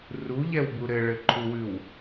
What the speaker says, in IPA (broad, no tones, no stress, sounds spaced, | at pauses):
r u ʎ ɛ w b u ɾ ɘ ɭ ɘ ǃʰ u w ʉ w